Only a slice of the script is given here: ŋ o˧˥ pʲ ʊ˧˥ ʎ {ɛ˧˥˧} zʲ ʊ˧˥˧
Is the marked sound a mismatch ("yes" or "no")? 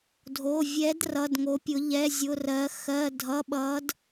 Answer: no